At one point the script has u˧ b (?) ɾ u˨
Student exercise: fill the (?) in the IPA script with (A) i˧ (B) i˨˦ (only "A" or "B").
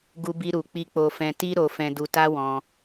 A